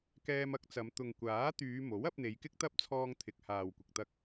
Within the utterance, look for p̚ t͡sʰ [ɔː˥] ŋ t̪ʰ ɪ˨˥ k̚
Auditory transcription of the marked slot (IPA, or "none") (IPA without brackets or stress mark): ɔː˧